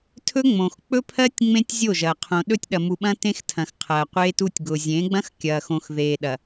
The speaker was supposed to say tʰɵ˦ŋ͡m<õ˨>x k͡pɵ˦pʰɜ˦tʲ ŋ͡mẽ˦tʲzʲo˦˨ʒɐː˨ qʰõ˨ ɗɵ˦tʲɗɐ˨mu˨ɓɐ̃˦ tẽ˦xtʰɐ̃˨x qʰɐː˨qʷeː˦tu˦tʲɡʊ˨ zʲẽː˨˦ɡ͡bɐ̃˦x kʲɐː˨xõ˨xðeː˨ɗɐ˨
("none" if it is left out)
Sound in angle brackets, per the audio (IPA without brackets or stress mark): õ˨